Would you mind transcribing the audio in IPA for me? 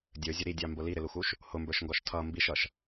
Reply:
dʲ ə˞ zʲ ə ɾ i dʲ ɑ m b ʊ l i ɾ ɪ l u x u ʃ | h ʊ m b ə˞ ʃ ŋ ɡ ɔ ʃ tʰ ʌ m b i ʃ ʌ ʃ

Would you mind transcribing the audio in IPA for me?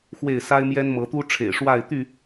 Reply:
x w e˥˨ ɪ̯ s a˦ ɪ̯ m j ɛ˦ n m ɤ˨˦ t̪ u˦ ʈ͡ʂʰ ḛ˨˩ ɪ̯ ʂ w a˥˨ ɪ̯ t̪ y˥˨

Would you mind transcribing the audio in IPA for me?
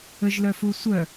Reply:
ə ʒ l œ f u sʷ œ

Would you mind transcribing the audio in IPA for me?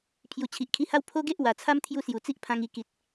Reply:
pʰ j u˨˩ t͡ɕʰ i˨ ʔ kʰ i˧ h a˦ w pʰ o˦ ɡ e˦ ʔ w a˨˩ t͡sʰ a˦ m t̪ʰ j u˦ s j u˨˩ t͡s i˦ ʔ pʰ ã˧ ŋ i˧ k i˨ t̚

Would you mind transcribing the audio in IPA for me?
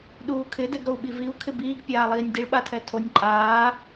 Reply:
ɗ uː kʰ ɪ d ɛ ɡ ɾ o u̯ ɓ i v i u̯ kʰ ɪ b iː ɡ pʲ aː lˠ iː nʲ d i ɭ ɓ a tʰ ɛ tʰ o nʲ ǃʼ aː

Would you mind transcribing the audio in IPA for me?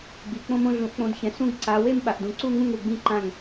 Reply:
ɡ͡b i˨ k͡p õ˥˧ m õ˥˧ ɮ ũ˨˦ ʔ k͡p õ˨˦ d ç ɛ̃˨ s ũ˥˧ ɡ ǀ a˨˦ w e˥˧ m ɓ a˨ ʔ d ũ˨ ǀ u˥˧ ŋ ũ˥˧ ŋ ɾ u˨ ɡ͡b ĩ˥˧ ǃ ã˥˩ ŋ

